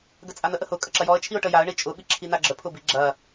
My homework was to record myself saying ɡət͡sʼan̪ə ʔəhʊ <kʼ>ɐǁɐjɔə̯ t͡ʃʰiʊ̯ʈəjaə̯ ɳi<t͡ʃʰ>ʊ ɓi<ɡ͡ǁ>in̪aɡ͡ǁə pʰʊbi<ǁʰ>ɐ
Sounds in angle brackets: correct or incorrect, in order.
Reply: correct, incorrect: t͡ʃʼ, incorrect: ǁʰ, incorrect: ɡ͡ǁ

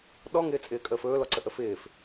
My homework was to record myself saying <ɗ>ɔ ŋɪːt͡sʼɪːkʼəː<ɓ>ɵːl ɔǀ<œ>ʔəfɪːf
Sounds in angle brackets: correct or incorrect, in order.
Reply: correct, incorrect: f, incorrect: ə

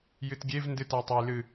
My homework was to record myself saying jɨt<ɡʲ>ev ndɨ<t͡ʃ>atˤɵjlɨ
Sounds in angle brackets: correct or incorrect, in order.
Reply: correct, incorrect: t

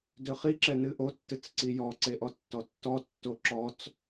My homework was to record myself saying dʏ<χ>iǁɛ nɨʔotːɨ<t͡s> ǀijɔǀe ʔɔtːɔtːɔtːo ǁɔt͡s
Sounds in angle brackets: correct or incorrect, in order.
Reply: correct, correct

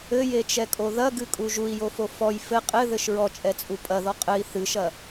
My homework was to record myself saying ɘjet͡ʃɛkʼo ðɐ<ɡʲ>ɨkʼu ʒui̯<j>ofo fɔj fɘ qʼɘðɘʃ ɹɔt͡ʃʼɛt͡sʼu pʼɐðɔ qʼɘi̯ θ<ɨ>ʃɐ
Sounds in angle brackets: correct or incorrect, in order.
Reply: incorrect: ɡ, correct, correct

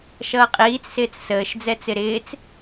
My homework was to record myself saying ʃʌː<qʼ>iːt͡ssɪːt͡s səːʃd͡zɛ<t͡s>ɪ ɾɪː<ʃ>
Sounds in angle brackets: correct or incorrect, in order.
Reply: correct, correct, incorrect: t͡s

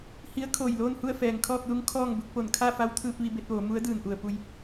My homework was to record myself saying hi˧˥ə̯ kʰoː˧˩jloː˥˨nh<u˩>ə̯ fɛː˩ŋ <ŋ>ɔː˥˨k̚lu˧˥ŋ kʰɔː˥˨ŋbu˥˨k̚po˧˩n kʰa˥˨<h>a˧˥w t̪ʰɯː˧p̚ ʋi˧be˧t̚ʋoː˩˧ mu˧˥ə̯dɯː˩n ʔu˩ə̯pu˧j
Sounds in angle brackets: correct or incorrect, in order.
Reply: incorrect: u˥˨, incorrect: kʰ, incorrect: f

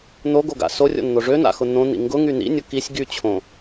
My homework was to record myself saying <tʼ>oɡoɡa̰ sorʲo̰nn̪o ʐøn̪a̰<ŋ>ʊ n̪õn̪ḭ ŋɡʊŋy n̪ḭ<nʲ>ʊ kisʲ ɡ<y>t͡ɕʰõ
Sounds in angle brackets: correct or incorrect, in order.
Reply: incorrect: n̪, incorrect: x, correct, correct

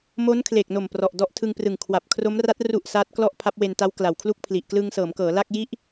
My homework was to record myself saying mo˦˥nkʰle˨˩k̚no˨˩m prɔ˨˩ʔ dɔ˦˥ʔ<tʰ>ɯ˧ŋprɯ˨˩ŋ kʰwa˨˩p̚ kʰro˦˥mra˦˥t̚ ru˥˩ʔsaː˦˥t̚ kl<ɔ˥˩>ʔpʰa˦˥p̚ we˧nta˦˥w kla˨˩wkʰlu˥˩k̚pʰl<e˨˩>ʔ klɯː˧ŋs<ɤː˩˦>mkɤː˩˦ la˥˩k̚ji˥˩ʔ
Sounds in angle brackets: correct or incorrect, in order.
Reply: correct, correct, incorrect: i˨˩, correct

